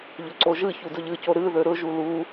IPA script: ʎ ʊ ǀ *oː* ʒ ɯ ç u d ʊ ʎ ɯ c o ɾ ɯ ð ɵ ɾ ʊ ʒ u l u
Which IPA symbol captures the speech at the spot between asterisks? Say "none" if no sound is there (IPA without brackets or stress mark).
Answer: o